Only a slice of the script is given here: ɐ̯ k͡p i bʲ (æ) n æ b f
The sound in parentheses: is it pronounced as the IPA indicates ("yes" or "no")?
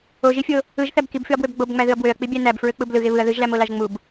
yes